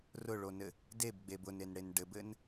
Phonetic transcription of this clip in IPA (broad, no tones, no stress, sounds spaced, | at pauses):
r ʊ ɭ o n ɘ | d e b ɡ͡b e b ʊ n e n ɽ e n ɖ ɘ b ɘ n